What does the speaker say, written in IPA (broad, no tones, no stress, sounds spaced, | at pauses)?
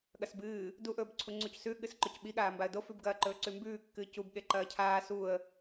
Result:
ɠ ɐ s b ɨː | d u ʔ ɵː b ǀʰ u ŋ͡ǀ u c s ʉ ɠ ɨ s ǃ o c ɓ i ɠ aː m b a ə̯ d o f ʉ b ɡ ɐː ǃ ɵː ǀ ʉ m b ʉː kː ɨː c u b ɠ e ǃ ɐː cʰ aː s u ə̯